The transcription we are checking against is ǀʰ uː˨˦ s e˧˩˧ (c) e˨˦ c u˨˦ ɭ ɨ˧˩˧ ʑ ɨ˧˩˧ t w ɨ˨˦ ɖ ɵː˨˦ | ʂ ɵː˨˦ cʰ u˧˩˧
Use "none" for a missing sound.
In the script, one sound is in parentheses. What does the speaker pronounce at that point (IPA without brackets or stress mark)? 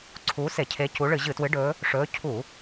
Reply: cʰ